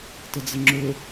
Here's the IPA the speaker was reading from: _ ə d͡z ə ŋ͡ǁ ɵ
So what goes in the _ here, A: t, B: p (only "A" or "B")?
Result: A